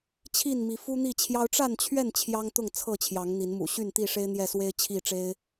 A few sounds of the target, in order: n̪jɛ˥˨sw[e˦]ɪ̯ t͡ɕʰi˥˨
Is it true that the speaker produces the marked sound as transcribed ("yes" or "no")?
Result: yes